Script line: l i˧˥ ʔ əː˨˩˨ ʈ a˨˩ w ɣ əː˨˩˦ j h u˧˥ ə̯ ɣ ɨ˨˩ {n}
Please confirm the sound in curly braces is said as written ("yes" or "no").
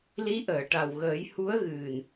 yes